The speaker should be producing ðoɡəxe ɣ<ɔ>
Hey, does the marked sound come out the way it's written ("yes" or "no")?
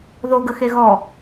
yes